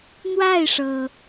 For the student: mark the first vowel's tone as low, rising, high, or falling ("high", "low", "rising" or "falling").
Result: falling